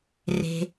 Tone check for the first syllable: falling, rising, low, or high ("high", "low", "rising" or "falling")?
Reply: low